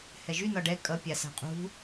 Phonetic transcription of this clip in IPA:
h ɛ ʒ y n ɒ ɖ ɛ kʼ ʌ pʲ a s a̤ qʼ ṳ

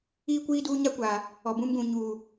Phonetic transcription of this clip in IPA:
iː˦ kʷ iː˦ d uː˦ ɲ a˦ kʷ aː˨ | ɔ˨ b ũ˦ m ɡ ũ˨ ɲ uː˨

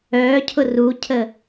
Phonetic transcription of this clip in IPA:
œː cʰ ʊ r u cʰ ə

